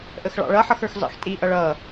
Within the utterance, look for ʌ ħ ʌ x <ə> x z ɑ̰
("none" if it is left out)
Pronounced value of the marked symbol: ə˞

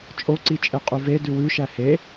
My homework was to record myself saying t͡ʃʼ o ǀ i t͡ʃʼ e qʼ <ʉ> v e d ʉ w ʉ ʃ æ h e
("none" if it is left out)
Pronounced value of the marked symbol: ʉ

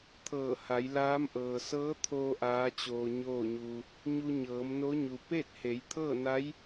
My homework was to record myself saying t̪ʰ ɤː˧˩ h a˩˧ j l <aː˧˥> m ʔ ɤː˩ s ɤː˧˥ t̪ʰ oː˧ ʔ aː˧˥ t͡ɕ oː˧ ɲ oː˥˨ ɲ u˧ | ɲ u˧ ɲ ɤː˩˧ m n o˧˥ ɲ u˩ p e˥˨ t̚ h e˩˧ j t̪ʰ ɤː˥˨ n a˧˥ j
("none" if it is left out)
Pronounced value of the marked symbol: aː˧˥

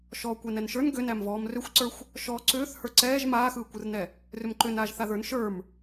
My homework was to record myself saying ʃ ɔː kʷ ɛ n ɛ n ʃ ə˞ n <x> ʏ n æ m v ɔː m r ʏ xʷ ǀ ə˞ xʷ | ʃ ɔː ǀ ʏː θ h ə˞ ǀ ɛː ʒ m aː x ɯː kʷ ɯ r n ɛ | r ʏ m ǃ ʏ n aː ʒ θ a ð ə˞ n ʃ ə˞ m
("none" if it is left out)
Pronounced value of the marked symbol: ɡ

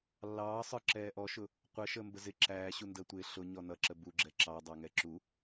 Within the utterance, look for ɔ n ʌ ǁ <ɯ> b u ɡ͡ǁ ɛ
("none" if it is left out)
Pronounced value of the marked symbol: ə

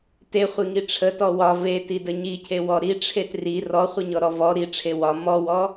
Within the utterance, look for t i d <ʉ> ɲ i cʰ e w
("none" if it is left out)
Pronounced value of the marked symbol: ə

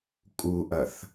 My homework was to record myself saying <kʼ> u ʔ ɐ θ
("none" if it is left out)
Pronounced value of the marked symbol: kʼ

